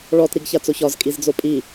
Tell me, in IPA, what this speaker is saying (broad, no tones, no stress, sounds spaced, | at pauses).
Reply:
ɭ ɔ t ɾ i ɡ ç a t͡s o ç ɒ z kʼ i z d͡z o pʼ i